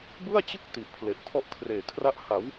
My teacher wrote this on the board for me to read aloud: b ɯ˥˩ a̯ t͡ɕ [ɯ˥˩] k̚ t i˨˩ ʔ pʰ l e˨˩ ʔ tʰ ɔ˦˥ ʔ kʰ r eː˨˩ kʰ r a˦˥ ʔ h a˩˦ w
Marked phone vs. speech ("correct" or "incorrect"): correct